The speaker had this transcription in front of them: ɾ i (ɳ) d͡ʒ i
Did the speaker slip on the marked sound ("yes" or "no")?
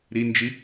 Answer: yes